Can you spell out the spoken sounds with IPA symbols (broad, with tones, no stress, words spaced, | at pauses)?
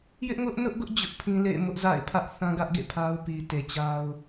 jɪ˦ʔŋʊ˦ʔnʊ˦ʔɡʊ˦ʔ d͡ʑʊ˦ʔpʰĩ˦lḛ˦˨ɪ̯ mʊ˦ʔza̰˦˨ɪ̯pʰä˦ʔ θã˦ɡä˦ʔɡḛ˦˨ pʰa˦ʊ̯ pi˨te˨t͡ɕa˦ʊ̯